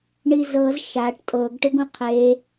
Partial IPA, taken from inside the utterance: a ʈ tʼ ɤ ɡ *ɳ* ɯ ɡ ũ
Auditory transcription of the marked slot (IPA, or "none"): ʈ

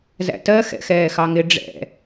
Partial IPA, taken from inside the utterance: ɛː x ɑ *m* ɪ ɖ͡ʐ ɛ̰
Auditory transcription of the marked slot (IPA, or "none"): ŋ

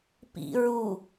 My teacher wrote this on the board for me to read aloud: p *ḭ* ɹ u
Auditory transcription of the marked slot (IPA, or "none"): ḭ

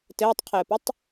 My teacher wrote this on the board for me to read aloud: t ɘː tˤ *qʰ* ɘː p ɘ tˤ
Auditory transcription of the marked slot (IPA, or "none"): qʰ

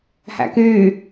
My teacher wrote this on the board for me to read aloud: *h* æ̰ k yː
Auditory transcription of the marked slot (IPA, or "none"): h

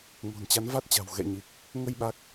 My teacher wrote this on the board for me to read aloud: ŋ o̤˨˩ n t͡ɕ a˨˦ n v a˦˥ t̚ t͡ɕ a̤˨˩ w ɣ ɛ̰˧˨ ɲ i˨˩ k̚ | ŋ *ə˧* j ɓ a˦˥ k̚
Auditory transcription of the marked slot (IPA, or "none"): ə˧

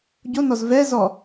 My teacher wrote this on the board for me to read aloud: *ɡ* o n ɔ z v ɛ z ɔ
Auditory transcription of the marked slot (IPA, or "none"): ɟ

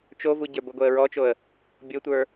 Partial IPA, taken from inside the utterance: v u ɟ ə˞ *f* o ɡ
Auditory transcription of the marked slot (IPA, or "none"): b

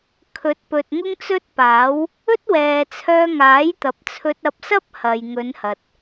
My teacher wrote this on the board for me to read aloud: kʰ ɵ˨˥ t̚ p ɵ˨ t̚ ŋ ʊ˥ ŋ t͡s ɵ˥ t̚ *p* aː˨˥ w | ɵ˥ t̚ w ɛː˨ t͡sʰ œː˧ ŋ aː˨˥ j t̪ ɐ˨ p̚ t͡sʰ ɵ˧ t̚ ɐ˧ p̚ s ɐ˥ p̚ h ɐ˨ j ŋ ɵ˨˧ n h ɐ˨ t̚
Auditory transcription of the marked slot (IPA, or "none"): p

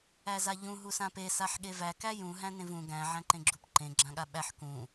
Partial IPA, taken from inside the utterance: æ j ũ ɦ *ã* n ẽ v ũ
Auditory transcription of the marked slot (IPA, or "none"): æ̃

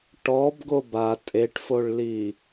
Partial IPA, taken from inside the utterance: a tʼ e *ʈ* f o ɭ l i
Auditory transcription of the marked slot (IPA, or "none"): ʈ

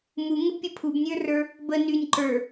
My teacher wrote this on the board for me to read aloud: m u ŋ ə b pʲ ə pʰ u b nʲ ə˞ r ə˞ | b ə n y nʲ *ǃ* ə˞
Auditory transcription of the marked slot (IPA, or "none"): ǃ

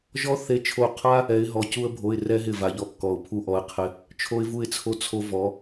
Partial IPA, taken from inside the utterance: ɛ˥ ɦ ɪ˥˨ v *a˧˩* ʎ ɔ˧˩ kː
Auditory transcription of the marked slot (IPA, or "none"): a˧˥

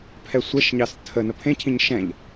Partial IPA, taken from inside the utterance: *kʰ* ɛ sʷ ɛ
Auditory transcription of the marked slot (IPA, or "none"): pʰ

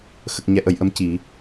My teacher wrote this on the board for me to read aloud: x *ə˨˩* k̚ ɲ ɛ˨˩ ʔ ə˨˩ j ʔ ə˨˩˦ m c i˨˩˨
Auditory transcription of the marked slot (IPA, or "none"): ə˨˩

